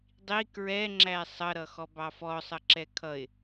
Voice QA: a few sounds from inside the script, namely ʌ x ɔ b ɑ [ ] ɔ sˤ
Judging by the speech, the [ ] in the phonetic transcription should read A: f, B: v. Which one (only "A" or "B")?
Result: A